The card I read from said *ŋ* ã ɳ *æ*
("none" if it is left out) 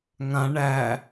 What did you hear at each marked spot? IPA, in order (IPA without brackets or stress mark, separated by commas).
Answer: ŋ, æ